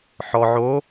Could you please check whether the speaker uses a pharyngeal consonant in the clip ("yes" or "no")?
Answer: yes